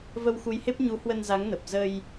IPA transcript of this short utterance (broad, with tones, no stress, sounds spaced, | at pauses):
v ə˧ w x u˨˦ j h e˦˥ p̚ ɲ u˨˦ h w ə˧ n z a˨˦ ŋ n ə˨˩ p̚ z ə˧ j